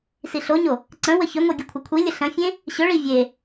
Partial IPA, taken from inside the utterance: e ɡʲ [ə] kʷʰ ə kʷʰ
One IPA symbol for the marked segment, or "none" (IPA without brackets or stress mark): ə